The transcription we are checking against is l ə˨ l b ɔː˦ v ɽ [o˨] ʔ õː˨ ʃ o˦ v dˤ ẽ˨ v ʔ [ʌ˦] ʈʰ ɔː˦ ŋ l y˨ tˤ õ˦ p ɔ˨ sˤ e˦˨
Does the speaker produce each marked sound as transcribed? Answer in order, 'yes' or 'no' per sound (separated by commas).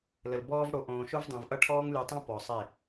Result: yes, yes